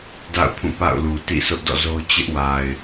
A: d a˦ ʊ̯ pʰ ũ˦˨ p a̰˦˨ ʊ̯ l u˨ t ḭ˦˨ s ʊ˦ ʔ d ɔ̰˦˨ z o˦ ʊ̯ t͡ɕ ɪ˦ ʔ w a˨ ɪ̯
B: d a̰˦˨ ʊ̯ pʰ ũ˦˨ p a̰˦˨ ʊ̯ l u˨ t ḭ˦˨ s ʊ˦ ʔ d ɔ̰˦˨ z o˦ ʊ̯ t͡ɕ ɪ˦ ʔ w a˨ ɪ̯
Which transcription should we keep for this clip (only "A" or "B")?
B